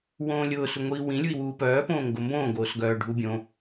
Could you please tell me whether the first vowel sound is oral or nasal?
nasal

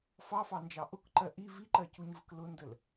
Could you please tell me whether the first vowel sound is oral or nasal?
oral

